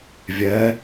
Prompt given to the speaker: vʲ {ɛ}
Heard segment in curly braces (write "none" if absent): ɛ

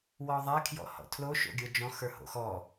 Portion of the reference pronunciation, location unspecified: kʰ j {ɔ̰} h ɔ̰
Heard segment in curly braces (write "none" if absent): ɔ̰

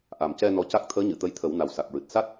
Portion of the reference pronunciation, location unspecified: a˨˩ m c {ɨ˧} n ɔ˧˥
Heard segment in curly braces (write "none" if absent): ɛ˧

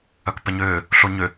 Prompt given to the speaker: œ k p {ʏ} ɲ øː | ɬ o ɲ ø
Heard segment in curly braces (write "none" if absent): ɛ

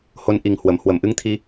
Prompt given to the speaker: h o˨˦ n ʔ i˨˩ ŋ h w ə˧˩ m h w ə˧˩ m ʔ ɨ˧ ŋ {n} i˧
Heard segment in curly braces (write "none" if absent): t̪ʰ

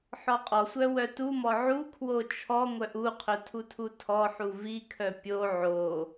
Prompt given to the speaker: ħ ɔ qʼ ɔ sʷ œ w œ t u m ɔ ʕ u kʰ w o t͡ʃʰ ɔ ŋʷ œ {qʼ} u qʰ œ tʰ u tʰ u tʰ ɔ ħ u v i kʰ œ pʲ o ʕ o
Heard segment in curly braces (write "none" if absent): ʔ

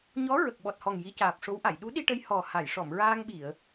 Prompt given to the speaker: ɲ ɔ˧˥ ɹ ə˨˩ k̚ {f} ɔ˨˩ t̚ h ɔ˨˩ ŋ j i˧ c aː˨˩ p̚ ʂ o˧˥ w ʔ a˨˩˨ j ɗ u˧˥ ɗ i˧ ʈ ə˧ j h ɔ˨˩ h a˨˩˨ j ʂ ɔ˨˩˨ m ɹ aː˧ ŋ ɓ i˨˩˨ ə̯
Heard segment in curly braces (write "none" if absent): ɓ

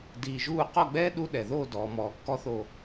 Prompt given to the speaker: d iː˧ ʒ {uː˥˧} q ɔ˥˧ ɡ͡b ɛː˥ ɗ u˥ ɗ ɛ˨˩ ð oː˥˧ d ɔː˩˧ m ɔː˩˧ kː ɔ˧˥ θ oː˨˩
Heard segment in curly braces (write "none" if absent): uː˥˧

